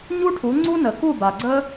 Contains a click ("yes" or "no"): yes